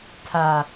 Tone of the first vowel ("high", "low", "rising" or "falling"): low